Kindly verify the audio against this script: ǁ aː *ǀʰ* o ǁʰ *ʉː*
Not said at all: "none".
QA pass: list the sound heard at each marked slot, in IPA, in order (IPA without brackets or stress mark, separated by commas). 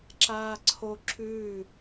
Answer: ǀʰ, ʉː